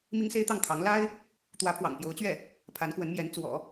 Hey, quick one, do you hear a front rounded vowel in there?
no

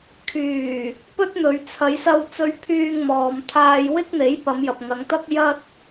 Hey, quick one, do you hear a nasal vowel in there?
no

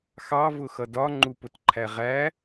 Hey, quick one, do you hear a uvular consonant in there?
yes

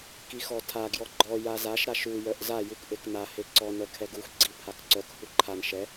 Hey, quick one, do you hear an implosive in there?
no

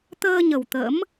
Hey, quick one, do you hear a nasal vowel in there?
no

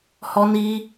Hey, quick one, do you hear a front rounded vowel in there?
no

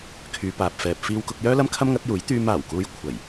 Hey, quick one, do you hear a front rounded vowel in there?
yes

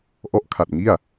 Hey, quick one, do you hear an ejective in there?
no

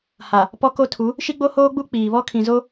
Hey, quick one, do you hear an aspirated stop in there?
yes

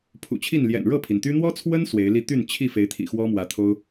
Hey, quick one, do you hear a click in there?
no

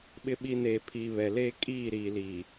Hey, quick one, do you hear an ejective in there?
yes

